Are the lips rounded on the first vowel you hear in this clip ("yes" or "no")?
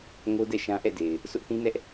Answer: yes